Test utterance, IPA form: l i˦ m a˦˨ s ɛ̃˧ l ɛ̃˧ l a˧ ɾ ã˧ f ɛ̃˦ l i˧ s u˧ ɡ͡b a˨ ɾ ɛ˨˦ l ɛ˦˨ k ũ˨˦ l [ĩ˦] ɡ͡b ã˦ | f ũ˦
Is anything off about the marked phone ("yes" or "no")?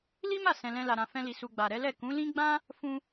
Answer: no